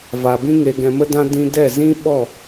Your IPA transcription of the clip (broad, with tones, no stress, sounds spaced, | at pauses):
v a˨ b ĩ˦ ŋ e˧ ɡ ɛ̃˧ m ə˦ d ã˦ d ĩ˦ d ɛ˦˨ z ĩ˦ ɓ ɔ˦˨